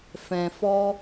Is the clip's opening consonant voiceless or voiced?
voiceless